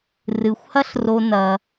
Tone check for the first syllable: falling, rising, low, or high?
low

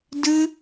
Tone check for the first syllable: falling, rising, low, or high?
high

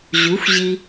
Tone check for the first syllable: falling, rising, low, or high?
rising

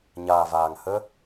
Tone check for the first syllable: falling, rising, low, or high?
low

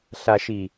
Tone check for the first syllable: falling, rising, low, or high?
low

